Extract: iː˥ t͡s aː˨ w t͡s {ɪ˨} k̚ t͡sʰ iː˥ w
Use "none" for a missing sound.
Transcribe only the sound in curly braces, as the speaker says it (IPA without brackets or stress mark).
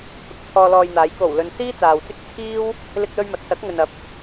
ɪ˥